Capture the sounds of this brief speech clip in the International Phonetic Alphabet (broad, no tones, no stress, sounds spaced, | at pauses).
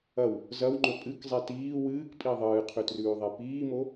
ɐ w | z ɐ w ŋ͡ǃ ɵ pʼ ɨ k zˤ e t iː w ɨː k pʼ i ðˤ ɨː qʰ ʉ t r ʉː ðˤ e p iː m o